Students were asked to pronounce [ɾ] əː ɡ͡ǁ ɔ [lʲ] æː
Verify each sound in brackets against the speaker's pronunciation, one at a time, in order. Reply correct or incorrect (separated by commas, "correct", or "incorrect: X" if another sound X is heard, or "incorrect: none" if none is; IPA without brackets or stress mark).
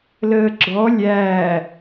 incorrect: l, correct